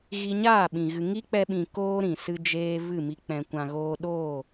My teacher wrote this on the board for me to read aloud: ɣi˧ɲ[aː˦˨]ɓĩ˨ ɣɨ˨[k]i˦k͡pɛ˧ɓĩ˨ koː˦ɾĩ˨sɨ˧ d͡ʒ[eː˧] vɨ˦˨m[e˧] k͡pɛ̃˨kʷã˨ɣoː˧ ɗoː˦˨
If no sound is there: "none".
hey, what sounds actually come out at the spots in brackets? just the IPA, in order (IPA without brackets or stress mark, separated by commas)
aː˦˨, ŋ, eː˧, i˧